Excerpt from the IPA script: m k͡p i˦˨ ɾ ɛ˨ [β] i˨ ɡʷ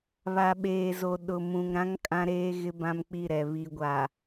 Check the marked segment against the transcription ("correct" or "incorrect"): correct